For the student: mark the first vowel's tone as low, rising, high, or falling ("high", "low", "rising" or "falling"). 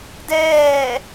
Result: falling